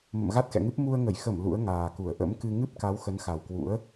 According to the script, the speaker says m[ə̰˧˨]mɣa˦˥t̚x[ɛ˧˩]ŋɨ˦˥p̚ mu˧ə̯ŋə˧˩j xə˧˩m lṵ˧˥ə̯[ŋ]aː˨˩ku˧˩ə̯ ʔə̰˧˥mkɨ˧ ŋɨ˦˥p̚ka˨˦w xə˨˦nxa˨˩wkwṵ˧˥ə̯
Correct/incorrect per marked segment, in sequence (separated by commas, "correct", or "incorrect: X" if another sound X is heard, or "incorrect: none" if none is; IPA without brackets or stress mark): correct, incorrect: ɛ̰˧˨, correct